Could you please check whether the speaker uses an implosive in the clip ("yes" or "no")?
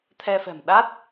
yes